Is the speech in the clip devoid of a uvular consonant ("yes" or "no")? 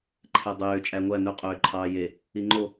no